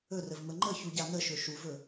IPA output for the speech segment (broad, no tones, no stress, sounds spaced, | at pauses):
ɵ r ə v m ə ŋ͡ǃ ə ç u ɟ a n ə ʃ ɵ ʃ u v ɵ